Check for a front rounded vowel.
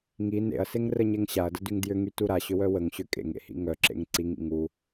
present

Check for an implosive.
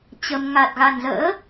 absent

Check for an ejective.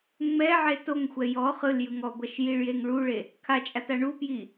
present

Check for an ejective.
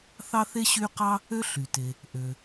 absent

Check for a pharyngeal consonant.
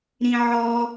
present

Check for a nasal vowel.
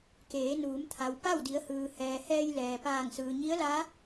absent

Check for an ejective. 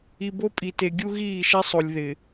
present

